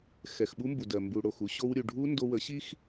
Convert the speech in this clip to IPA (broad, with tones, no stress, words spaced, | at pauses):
xɛ˨xɓu˦mbu˨dɜ˨ mbu˨ɽo˨x u˧ɕo˧wɾʲu˨ ɖʱu˦ ndo˧wə˨˦ɕi˦x